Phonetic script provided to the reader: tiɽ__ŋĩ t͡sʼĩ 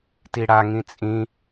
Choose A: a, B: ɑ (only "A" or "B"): A